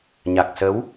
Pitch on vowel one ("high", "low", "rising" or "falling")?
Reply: low